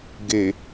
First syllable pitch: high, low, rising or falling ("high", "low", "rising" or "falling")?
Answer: low